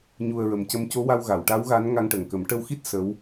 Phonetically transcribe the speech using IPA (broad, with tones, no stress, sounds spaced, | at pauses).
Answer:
ɲ u˨˩ ə̯ ɹ ə˨˩ m c ə˧ m c o˧˥ w a˧ w ɣ a˨˩˨ w ʈ a˧˥ w ɣ a˧˥ n ŋ a˧ ŋ ʈ ə˨˩ ŋ k ə˨˩˦ m ʈ ə˧ w x i˦˥ t̚ s ə˧˥ w